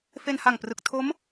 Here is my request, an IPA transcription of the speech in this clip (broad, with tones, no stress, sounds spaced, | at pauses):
f e˧ n h a˨˩ ŋ p r ɯ˨˩ k̚ tʰ o˦˥ m